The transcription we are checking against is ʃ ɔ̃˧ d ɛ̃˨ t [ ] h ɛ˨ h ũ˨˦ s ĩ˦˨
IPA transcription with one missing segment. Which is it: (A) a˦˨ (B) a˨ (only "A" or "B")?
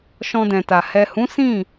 B